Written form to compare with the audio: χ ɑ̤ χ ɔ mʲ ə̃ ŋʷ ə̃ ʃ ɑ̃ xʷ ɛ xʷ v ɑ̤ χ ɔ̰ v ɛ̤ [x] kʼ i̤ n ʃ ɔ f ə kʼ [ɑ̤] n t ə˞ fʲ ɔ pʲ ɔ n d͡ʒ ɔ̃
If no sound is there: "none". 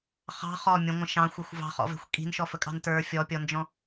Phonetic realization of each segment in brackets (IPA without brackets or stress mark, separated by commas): xʷ, ɑ̤